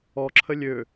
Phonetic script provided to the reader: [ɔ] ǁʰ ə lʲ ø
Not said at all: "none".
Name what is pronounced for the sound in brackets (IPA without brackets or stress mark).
ɔ